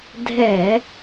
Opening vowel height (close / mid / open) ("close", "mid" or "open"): mid